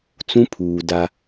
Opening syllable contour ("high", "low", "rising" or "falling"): high